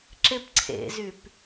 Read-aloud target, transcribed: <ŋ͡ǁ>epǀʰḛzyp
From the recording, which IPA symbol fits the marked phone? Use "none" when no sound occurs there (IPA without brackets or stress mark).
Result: ǁ